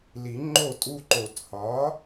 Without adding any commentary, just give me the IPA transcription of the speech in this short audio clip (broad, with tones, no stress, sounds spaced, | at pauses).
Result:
l i˨˩˦ ŋ͡ǃ o˥˩ tʼ u˦ ǃ o˨˩˦ t h ɒ˩˥